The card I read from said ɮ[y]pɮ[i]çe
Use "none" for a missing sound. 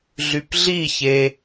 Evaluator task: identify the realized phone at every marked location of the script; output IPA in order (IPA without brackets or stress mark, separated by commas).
y, i